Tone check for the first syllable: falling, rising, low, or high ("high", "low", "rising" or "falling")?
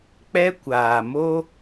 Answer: high